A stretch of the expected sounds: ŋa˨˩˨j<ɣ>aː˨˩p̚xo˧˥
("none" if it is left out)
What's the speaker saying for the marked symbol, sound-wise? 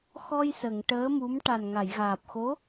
ɣ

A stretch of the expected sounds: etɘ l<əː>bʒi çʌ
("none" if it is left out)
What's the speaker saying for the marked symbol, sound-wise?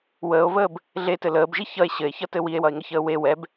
əː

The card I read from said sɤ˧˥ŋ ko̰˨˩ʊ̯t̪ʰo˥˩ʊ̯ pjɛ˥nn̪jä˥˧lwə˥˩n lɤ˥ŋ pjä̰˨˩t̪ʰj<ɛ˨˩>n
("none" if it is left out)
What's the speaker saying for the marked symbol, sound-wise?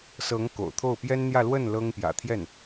ɛ˥˩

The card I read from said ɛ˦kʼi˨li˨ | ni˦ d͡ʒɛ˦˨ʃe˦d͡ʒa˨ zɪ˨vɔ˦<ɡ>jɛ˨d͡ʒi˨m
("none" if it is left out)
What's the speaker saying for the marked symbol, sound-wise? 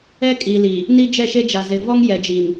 ŋ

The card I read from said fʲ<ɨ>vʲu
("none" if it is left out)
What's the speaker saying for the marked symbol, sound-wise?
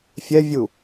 ɛ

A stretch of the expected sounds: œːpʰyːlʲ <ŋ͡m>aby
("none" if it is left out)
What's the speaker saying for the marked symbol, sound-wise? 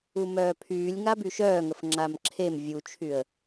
ŋ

